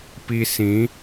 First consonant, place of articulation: labial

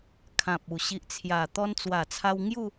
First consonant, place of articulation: velar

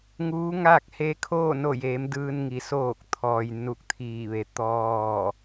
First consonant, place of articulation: velar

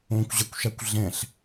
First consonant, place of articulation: velar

